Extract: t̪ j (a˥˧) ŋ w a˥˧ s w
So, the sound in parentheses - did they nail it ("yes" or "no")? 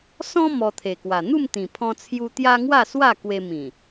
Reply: no